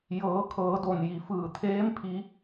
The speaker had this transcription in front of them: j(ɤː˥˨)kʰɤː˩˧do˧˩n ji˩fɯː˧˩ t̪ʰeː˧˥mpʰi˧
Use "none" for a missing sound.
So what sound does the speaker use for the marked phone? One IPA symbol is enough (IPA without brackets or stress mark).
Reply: ɤː˩˧